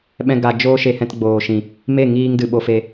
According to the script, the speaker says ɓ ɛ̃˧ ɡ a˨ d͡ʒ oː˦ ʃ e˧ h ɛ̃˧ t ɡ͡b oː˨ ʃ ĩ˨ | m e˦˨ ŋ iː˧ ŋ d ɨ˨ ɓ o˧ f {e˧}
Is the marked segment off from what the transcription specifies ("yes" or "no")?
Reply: no